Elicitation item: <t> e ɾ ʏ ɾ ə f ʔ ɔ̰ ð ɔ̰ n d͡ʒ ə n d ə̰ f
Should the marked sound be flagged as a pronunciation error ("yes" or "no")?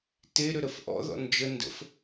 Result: no